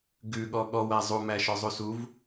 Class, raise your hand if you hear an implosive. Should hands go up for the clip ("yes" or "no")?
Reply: yes